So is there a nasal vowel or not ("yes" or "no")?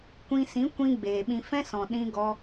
yes